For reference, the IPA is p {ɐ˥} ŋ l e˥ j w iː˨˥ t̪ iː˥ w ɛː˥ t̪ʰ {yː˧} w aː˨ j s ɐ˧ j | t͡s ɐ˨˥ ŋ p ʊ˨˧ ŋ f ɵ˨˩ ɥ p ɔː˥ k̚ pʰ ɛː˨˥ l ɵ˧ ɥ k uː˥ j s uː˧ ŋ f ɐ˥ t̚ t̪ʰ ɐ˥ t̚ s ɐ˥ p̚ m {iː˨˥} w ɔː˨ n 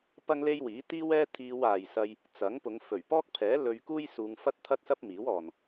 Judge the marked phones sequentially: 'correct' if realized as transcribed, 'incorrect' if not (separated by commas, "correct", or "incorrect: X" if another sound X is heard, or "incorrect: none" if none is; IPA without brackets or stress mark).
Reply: correct, incorrect: iː˧, correct